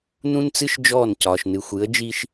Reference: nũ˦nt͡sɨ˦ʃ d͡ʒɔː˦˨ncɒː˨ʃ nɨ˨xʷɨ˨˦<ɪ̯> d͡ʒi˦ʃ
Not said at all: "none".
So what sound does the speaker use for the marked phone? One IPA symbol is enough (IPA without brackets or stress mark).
ə̯